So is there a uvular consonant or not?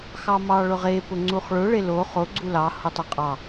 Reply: yes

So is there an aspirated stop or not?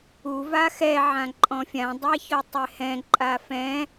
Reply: no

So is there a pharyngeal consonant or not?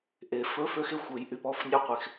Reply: no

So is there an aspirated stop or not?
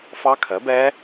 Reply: yes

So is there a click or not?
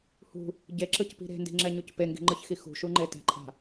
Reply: yes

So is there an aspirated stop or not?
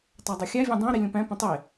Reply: no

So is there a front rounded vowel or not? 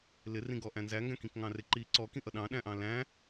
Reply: no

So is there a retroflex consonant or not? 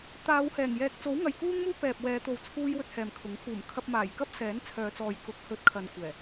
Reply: no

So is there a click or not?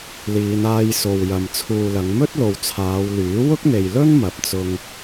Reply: no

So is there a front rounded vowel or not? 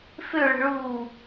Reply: yes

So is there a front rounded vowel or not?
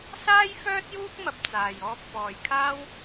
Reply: yes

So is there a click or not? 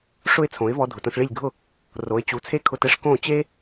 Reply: no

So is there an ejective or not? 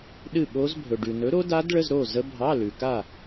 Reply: no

